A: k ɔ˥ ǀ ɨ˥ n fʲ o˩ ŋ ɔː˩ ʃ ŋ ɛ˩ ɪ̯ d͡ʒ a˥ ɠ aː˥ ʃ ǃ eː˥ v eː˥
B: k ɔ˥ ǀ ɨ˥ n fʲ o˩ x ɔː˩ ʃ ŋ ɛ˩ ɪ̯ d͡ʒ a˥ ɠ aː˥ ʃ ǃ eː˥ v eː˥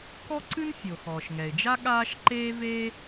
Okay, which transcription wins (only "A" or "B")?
B